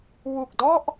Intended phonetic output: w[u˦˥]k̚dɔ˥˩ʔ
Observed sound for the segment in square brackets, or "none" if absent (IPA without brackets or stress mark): u˨˩